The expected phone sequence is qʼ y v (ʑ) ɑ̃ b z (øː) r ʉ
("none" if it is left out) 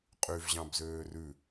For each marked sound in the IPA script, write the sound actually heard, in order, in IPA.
ʑ, øː

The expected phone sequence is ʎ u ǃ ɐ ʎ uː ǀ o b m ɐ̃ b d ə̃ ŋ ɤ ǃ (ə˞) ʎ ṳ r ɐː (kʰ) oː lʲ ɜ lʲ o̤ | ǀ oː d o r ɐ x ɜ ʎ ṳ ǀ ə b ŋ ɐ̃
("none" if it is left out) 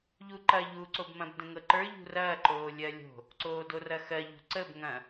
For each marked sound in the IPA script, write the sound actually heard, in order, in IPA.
ə˞, ǃ

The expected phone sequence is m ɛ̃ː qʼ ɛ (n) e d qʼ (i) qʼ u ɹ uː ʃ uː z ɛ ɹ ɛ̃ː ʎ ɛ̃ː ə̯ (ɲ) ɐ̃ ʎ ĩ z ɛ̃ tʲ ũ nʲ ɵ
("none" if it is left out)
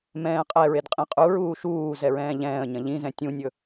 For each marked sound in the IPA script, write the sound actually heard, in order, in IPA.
ɹ, ĩ, ɲ

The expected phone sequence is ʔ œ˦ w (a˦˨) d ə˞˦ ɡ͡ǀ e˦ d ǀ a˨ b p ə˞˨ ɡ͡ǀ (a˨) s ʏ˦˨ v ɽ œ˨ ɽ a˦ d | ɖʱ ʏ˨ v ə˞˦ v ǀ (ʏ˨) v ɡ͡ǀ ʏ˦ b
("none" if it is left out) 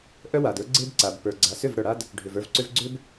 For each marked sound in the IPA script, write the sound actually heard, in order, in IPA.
a˨, a˨, ʏ˦

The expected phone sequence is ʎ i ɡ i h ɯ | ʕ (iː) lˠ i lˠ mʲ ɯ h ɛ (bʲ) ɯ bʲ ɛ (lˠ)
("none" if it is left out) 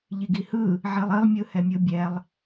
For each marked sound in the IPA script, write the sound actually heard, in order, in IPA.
i, mʲ, lˠ

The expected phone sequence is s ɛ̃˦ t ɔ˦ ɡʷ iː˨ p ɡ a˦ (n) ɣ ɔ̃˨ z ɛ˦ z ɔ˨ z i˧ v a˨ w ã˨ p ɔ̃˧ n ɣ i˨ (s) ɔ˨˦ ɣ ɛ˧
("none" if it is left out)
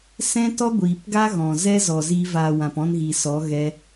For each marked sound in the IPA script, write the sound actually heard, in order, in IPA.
none, s

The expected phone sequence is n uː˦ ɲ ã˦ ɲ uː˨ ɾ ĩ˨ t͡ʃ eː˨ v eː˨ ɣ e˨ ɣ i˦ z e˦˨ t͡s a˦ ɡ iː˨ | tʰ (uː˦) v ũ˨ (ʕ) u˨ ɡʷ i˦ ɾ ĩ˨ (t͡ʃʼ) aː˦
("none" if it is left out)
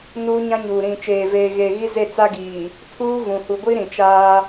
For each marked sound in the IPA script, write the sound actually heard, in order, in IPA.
uː˦, h, t͡ʃ

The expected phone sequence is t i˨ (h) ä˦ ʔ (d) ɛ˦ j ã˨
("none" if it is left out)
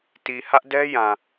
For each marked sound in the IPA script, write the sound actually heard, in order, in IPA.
h, d

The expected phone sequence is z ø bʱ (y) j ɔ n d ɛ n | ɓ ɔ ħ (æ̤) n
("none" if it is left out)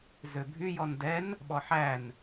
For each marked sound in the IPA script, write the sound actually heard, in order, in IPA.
y, æ

